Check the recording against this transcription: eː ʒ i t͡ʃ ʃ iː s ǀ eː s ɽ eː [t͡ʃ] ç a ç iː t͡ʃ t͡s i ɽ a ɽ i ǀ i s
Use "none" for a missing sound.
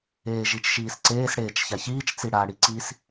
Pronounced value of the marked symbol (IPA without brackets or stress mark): t͡ʃ